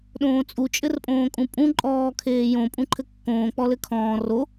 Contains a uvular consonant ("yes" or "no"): no